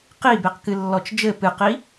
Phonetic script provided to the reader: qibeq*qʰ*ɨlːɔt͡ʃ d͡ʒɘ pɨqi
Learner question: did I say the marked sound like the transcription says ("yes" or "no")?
no